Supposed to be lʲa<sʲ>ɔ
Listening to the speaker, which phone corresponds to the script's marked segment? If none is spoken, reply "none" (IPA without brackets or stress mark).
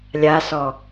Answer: s